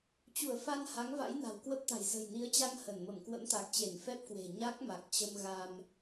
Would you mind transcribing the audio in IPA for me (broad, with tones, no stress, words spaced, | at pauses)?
t͡ɕu˧˩ə̯fa˧n ha˨˦ŋva̰˧˥j na̤˨˩wkwə˦˥p̚t̪a̤˨˩j zə̤˨˩jni˨˦ə̯t͡ɕa˧ŋ hə˧˩nmə˧˩m kwə̰˧˥mt̪a˨˩k̚t͡ɕe˧˩n fɛ˦˥p̚kwe̤˨˩ ɲa˦˥k̚ma˨˩k̚ t͡ɕə˧mɣa˧m